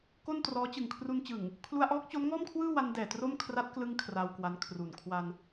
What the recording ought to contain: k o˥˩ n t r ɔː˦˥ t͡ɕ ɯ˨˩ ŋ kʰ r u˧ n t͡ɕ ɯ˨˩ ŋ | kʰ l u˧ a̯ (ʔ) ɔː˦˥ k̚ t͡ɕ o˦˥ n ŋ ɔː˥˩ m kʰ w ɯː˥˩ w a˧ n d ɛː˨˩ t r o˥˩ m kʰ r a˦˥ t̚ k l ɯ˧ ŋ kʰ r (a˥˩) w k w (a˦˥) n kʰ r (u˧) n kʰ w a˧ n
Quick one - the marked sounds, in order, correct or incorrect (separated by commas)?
correct, incorrect, incorrect, incorrect